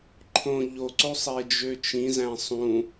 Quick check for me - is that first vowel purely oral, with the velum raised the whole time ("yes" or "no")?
no